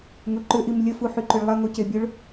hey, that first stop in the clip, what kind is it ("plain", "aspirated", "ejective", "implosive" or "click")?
click